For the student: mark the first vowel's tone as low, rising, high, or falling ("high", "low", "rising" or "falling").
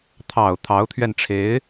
low